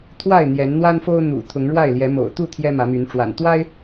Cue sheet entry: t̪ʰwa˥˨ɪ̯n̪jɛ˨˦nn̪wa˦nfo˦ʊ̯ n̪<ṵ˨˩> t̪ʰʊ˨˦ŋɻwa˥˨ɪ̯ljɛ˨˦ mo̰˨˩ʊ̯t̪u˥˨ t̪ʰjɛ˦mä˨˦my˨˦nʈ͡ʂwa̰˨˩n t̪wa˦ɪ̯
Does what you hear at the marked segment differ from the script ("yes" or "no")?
no